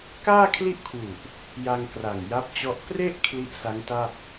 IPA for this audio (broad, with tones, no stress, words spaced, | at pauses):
kaː˥˩kʰli˥˩ʔkʰwu˨˩ʔ | ja˧ŋkra˨˩ŋ ja˦˥p̚t͡ɕɔ˦˥ʔ pre˥˩ʔ kʰli˦˥ʔsa˦˥ŋta˥˩p̚